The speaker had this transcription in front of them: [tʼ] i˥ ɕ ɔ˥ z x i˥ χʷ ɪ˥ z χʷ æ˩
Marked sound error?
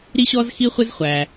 yes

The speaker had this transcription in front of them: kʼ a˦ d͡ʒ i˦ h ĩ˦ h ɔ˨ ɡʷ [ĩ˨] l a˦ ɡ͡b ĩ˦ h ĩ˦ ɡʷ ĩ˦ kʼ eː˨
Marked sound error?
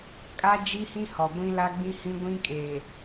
yes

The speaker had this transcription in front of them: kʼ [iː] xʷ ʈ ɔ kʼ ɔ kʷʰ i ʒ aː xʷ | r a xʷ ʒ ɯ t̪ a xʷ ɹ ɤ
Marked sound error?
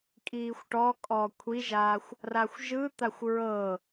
no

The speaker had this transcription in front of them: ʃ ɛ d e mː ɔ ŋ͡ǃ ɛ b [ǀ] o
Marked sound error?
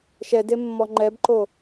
yes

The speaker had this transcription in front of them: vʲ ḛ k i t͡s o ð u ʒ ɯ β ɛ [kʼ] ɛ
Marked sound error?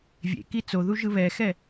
yes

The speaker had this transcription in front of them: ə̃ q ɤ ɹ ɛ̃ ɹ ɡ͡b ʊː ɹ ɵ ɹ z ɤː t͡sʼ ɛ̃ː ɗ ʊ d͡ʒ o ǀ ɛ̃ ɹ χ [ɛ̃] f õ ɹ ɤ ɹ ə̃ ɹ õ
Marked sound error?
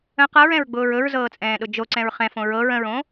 no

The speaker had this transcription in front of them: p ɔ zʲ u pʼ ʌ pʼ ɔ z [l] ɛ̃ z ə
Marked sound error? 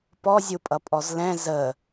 no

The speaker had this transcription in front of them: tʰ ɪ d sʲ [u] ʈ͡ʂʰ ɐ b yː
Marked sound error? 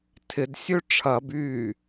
yes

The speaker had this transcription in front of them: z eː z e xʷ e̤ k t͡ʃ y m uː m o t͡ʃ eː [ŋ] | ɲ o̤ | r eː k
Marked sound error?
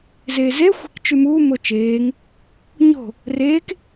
no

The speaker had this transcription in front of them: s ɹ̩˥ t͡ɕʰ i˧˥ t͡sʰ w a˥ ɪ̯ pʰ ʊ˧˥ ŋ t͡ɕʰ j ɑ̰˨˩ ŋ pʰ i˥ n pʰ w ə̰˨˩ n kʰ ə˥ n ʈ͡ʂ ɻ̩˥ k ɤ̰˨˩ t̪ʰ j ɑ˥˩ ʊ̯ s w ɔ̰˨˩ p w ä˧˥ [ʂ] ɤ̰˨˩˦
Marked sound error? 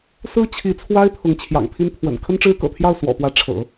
yes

